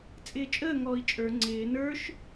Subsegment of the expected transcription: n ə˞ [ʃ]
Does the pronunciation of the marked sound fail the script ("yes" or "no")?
no